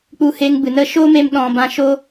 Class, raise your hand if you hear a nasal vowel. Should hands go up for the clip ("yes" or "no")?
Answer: yes